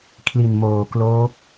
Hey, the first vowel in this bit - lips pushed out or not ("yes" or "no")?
no